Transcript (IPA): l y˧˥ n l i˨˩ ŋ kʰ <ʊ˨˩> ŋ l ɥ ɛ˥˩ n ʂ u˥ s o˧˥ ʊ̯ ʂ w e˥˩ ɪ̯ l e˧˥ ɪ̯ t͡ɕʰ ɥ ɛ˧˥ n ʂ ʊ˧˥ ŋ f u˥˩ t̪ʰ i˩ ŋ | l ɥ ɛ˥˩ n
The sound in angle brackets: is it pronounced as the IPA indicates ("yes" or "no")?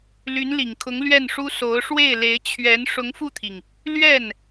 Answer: no